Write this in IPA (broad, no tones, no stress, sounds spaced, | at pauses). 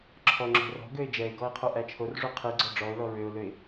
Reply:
ǁʰ ɔ ŋ͡ǁ o̤ r ɔ̤ ɡ ø ɪ̯ d͡ʒ ɛ ɪ̯ ɡ ɔ ɪ̯ qʰ u ʔ æ t͡ʃʰ o r ʐ u qʰ i ɡ͡ǀ ɔ ɖ͡ʐ ɔ ʊ̯ l ɔ ɹ ø ʊ̯ l ø ɪ̯